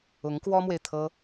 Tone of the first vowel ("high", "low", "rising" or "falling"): rising